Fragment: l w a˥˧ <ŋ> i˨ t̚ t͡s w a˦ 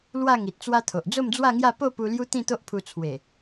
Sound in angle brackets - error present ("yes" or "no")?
no